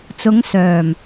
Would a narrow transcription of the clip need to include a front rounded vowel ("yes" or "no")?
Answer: yes